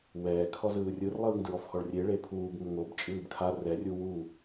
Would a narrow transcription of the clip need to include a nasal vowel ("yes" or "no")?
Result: no